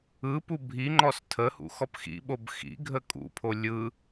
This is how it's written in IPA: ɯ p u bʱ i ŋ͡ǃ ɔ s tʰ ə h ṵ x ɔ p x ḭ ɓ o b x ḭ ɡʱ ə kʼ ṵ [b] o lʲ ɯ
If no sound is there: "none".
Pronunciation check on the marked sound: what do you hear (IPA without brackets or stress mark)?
pʰ